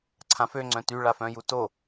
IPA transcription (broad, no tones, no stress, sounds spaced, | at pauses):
ǀʰ ã f ø ŋ͡ǀ œ̃ t y ɭ a f œ̃ j u t o